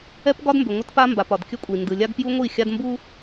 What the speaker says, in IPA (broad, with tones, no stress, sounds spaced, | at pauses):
ɛ˦ p ɡ ɒ˦ d m b ʏ˨ ŋʷ ə˦ t p a˦ m b a˨ p ɒ˨ d kʲ ə˦ kʷʼ i˨ n d ɯ˨ lʲ a˦ ɡ p j u˦ ŋʷ i˦˨ xʲ a˦ d m b u˦